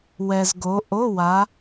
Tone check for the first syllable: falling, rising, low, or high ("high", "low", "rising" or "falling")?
low